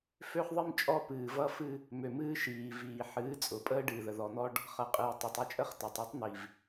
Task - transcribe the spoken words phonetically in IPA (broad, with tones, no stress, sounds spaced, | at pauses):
f ø˦ χ ðˤ ɨ˦ m t͡ʃʼ ɔ˦ p ɨː˨ v ʌ˦ f ɨ˦ | m ø˨ m ɨː˦ ʃ iː˨ v iː˨ ħ ɨː˨˦ t͡sʼ ʊ˨ pʼ əː˦ ɖ ɨː˨ ð ə˨ ð ɔ˨ n̪ ɔ˦ ɖ | χ ʌ˨ qʼ ɨː˨ tˤ o˨ tˤ ə˦ t͡ʃʼ ə˦ χ t ʌ˨ tˤ ø˦ tˤ n̪ i˨ v